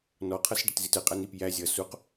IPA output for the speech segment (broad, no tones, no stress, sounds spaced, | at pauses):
n ɔ qʰ ʌ s ɖ ə t z i t ə qʼ æ n i p j æ zʲ ʌ s u q